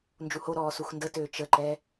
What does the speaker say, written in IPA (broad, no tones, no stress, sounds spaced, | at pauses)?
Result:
n d͡ʒ u h o ɾ ɔː s u x n d ə t øː t͡ʃ ə ǃ ɛ